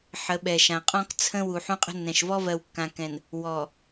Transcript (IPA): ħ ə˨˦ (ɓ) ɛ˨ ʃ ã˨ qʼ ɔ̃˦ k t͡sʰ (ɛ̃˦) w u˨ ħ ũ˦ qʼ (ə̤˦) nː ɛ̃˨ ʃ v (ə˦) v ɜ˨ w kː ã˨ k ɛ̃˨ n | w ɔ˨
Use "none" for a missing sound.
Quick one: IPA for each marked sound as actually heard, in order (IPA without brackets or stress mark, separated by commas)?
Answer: ɓ, ə̃˦, ə̤˦, ɔ˦